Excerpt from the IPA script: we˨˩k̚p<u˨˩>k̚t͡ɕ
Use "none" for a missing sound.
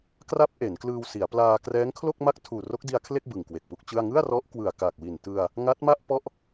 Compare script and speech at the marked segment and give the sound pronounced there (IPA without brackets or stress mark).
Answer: u˦˥